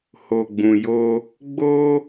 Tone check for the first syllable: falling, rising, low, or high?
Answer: low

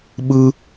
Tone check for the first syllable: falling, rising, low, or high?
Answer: high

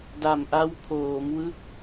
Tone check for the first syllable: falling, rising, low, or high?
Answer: low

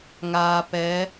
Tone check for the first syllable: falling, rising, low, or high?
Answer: low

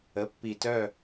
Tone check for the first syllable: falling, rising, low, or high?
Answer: rising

